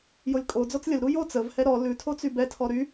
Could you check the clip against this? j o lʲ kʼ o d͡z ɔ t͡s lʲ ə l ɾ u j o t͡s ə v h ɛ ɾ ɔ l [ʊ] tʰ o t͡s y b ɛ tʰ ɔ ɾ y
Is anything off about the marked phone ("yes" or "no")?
yes